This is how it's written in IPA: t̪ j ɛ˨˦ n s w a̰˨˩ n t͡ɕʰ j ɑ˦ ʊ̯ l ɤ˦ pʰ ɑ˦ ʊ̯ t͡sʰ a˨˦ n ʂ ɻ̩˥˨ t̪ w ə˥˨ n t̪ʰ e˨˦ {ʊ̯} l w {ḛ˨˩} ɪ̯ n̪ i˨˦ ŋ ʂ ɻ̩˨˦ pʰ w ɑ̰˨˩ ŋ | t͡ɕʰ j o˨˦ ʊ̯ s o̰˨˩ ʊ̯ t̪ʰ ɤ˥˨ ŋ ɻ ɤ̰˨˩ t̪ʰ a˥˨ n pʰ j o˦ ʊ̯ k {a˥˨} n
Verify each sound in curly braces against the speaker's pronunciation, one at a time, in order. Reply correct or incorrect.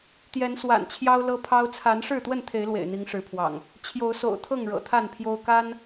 incorrect, correct, incorrect

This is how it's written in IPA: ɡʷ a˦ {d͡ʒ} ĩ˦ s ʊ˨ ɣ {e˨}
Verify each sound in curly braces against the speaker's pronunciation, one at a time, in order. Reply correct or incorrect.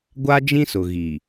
correct, incorrect

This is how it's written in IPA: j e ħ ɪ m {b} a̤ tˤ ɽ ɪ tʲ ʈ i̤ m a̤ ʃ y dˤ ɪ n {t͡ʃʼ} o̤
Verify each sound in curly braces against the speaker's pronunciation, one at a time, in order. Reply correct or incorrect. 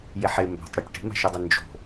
correct, incorrect

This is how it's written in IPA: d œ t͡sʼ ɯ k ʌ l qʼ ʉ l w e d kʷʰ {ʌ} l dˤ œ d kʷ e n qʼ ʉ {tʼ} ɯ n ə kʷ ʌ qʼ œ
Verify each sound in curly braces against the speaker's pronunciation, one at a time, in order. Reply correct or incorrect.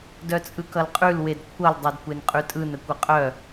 correct, correct

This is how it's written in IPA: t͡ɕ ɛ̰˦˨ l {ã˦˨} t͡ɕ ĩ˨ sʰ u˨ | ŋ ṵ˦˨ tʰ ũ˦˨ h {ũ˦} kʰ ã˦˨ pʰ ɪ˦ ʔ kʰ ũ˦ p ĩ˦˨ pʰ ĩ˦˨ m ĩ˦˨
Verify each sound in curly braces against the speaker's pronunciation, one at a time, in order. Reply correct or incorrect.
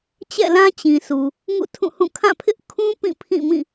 incorrect, incorrect

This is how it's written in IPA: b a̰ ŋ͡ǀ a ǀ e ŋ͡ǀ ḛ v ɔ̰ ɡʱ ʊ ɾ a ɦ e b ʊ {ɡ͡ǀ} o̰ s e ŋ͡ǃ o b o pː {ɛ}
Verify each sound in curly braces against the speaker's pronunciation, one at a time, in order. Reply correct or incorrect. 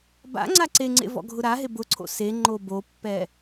incorrect, correct

